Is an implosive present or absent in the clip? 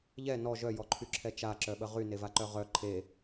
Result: present